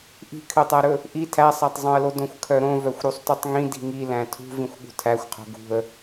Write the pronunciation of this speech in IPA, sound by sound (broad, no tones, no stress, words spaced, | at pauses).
ʔi̤kʰøtˤæɾɵ | ʔi tʰæsˤætˤzˤœ̃ə̯lo dõxʷkʰœɾõ vœxʷɾusˤtutˤŋĩ di̤ŋilæ̃ tʰṳ vĩxʷɠṳtʰæxʷqʰo̤ ɡṳə̯